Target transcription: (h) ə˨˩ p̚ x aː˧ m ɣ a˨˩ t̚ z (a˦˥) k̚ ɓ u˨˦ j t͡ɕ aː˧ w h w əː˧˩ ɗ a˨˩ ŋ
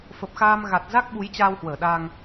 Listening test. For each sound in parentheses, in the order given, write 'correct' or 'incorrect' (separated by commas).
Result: incorrect, correct